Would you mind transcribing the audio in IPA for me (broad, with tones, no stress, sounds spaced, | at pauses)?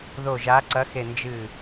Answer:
ð o˧˩ ʒ a˨˦ ǀ ɐ˨˦ x e˧˩ n d͡ʒ ɨ˧˩